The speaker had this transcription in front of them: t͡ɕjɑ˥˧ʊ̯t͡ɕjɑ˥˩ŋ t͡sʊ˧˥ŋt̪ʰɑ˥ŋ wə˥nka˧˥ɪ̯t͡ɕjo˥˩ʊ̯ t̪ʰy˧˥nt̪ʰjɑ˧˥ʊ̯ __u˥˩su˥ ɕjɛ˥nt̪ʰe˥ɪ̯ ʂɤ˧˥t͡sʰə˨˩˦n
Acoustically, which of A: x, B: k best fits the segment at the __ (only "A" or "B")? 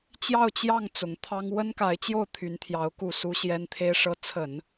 B